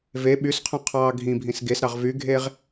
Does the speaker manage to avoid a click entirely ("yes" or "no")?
yes